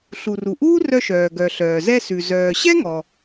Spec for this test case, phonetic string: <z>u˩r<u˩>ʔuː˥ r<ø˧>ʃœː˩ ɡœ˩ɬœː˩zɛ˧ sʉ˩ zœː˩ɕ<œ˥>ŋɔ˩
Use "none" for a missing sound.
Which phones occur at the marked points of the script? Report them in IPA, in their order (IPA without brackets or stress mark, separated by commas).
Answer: ɬ, u˩, œ˧, ɛ˥